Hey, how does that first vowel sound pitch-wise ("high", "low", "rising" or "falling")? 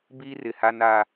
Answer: high